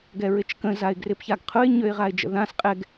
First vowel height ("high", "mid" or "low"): mid